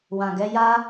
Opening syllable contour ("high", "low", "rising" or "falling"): low